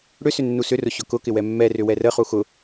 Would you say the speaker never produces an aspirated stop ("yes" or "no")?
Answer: yes